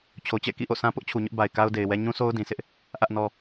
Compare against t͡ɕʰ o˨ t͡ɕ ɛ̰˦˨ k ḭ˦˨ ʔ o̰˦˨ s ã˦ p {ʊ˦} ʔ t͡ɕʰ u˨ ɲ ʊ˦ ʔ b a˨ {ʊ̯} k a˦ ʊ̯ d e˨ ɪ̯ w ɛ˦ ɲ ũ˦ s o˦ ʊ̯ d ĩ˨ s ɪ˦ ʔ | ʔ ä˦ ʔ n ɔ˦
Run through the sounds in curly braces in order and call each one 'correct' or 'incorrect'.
correct, incorrect: ɪ̯

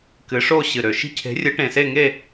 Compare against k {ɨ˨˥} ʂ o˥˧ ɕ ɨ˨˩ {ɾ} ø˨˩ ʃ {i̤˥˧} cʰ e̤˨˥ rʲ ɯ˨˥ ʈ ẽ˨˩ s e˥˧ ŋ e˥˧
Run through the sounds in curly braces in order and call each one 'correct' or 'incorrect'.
correct, correct, correct

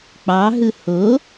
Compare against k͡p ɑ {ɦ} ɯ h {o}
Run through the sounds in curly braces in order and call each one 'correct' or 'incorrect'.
correct, correct

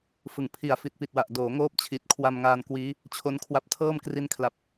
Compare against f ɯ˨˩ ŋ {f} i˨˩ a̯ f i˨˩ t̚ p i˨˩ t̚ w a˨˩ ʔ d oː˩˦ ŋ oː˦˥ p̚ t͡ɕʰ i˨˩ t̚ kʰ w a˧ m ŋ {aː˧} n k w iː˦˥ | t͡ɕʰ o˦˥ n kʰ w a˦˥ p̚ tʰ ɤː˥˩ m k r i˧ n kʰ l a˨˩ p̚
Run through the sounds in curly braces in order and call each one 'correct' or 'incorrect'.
incorrect: pʰ, correct

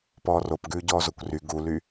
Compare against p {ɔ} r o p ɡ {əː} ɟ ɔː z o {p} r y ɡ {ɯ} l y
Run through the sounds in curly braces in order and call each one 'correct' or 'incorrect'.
incorrect: ɔː, incorrect: ʉː, incorrect: kʷ, incorrect: u

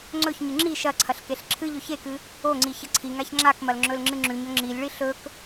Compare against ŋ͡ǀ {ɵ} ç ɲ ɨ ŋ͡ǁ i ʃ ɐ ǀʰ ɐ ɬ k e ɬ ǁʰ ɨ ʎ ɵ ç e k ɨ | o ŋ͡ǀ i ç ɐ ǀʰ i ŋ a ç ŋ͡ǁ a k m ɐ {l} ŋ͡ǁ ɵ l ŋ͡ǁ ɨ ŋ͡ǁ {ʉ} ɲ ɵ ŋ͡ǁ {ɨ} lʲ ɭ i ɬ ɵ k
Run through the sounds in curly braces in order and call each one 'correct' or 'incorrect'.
correct, correct, correct, incorrect: i

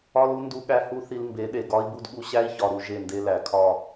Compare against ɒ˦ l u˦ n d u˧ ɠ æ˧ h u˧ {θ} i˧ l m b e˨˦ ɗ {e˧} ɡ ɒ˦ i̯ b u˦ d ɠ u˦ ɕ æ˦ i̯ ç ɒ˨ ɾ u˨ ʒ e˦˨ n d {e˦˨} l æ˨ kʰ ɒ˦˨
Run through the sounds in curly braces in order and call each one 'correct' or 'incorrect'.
correct, incorrect: e˨, incorrect: e˦

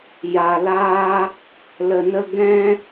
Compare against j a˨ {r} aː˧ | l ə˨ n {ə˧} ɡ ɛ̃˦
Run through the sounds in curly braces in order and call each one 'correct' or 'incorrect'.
incorrect: l, correct

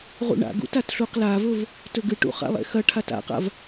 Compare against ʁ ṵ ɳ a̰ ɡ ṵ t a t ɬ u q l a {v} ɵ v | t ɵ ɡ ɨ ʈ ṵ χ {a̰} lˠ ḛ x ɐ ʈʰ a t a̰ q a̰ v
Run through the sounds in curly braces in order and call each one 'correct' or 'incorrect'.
correct, correct

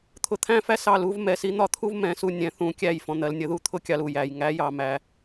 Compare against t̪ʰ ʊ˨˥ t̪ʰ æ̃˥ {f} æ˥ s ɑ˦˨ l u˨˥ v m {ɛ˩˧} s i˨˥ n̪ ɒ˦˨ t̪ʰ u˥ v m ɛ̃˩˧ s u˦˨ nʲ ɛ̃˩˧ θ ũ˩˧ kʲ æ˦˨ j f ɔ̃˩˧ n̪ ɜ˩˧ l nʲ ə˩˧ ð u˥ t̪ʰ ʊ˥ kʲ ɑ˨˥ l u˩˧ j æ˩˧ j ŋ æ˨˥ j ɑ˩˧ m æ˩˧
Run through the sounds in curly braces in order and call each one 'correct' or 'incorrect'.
correct, correct

